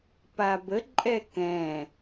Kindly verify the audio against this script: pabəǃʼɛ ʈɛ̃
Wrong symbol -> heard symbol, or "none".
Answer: ʈ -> k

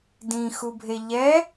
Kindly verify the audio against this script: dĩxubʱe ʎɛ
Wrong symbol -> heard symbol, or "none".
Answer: none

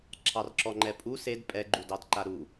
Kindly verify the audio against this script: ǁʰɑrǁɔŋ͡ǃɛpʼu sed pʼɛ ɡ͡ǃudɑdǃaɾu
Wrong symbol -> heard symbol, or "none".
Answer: none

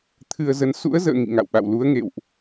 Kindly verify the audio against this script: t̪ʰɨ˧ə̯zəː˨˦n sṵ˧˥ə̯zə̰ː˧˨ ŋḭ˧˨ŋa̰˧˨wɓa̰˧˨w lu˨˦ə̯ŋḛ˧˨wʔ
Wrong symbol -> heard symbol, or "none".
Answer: əː˨˦ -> ə˨˦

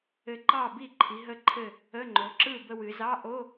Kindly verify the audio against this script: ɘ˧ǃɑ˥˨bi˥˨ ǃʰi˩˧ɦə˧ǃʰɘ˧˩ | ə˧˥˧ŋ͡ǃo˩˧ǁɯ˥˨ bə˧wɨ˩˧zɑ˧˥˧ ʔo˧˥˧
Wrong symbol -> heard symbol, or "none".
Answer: none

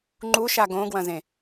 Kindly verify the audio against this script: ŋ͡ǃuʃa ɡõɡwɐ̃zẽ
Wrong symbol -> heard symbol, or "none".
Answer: none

